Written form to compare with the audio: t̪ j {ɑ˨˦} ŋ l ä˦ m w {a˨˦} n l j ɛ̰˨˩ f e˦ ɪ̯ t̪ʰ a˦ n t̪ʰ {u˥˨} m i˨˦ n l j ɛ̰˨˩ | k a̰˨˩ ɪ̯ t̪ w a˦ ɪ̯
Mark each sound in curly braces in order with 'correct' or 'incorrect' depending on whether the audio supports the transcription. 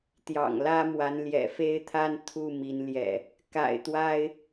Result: incorrect, correct, correct

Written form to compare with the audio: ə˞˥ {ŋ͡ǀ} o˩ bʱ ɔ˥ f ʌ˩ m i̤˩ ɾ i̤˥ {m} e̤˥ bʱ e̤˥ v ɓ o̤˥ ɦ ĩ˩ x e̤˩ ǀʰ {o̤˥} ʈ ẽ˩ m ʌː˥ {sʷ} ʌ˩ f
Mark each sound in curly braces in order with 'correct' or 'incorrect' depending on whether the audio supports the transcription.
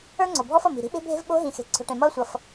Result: correct, incorrect, incorrect, correct

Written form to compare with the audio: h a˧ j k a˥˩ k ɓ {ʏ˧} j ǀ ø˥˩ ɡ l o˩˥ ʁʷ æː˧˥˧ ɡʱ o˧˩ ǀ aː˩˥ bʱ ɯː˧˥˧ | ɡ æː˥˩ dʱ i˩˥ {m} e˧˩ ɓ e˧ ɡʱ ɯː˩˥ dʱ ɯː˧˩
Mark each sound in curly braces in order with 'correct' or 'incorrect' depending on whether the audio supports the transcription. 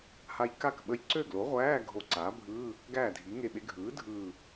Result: incorrect, incorrect

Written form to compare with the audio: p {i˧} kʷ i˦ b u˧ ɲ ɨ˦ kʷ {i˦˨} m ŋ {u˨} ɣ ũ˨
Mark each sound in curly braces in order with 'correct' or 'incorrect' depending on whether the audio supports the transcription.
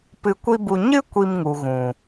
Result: incorrect, incorrect, correct

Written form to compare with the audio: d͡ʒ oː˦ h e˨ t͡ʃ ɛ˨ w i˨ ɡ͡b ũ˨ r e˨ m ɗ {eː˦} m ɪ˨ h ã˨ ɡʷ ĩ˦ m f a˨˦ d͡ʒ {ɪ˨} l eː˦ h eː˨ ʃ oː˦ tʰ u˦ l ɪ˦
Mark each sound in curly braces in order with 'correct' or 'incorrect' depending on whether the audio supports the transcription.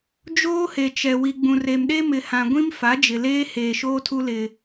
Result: incorrect, correct

